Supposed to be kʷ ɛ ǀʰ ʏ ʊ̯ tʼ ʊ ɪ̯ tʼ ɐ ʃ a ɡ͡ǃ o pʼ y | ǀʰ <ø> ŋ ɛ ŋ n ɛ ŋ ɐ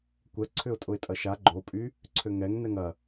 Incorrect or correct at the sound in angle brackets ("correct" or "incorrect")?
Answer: correct